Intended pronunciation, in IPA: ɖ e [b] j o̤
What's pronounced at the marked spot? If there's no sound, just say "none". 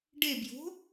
b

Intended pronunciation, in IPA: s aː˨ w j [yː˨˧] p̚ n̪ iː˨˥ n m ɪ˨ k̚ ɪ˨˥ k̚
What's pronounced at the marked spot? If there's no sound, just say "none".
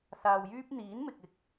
yː˥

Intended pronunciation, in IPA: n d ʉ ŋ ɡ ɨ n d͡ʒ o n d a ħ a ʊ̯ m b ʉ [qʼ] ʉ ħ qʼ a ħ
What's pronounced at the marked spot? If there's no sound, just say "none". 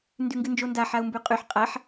qʼ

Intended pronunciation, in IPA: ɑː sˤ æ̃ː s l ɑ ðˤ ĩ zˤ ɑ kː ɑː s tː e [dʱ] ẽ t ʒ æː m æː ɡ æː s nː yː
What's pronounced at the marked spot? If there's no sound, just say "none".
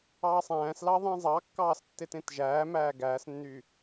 t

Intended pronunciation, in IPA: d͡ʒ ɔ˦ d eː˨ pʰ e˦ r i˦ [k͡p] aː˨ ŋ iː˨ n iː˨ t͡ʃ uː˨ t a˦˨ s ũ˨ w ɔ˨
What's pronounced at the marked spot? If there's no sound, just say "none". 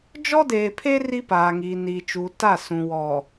p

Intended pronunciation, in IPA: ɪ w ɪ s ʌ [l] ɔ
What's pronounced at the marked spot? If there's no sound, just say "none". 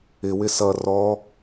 r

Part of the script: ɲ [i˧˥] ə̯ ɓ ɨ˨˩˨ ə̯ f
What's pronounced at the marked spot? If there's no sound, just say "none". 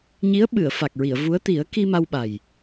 i˧˥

